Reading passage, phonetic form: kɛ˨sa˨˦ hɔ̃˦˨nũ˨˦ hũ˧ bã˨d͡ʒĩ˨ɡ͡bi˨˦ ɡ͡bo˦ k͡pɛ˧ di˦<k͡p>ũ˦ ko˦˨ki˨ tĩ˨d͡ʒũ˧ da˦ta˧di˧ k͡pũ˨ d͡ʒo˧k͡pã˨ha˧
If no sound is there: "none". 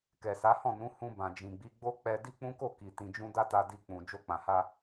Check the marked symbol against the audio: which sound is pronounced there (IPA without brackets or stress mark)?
k͡p